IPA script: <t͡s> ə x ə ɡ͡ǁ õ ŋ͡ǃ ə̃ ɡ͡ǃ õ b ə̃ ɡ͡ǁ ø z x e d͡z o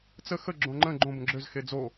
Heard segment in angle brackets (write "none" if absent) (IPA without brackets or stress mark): t͡s